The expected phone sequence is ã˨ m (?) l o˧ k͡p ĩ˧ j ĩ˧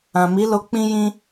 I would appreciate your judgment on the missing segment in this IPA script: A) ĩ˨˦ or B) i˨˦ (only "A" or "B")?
B